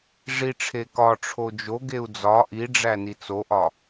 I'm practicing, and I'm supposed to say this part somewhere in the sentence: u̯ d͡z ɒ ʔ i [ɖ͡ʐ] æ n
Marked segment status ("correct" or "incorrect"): correct